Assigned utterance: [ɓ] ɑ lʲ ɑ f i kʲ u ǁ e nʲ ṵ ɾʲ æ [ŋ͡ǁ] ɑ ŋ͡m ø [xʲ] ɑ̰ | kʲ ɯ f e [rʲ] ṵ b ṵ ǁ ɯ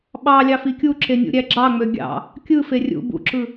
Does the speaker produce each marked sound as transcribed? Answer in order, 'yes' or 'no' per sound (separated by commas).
yes, no, no, yes